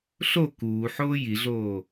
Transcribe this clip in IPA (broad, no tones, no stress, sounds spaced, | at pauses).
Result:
ɬ o k uː ħ oː j i ɮ oː